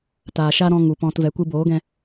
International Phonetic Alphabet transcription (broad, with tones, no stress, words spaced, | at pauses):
taː˨ʃa˦ ɾɔ̃˧ ŋu˨pɔ̃˧tvɛ˨˦kʷɨ˦ boː˨˦ɡɛ̃˧